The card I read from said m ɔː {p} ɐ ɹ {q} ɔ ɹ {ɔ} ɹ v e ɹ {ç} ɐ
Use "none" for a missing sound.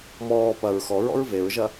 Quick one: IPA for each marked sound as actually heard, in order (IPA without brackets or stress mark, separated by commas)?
p, x, ɔ̰, ʒ